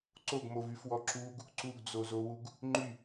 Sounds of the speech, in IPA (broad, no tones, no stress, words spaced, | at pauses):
ǀoɡmovyfwɔ ǁuɡ | ǀuɡd͡zozowuɡ | ŋ͡ǃy